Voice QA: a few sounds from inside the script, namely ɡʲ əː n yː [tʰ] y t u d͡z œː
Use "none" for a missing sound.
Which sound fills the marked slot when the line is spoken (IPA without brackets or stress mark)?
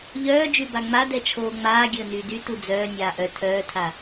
d